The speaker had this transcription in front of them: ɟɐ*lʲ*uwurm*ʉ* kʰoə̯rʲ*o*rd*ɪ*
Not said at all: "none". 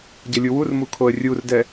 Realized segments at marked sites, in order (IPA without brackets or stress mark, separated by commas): lʲ, u, u, ɛ